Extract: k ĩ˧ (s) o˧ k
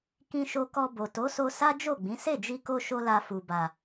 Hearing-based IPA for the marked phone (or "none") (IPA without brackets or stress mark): ʃ